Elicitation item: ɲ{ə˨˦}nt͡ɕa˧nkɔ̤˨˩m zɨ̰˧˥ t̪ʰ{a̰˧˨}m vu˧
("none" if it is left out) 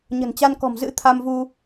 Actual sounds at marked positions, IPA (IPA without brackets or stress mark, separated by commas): ə̤˨˩, a˧